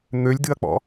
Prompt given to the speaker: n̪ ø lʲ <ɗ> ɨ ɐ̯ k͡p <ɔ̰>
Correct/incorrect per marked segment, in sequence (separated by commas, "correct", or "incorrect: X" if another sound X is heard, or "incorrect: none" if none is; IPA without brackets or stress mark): incorrect: d, correct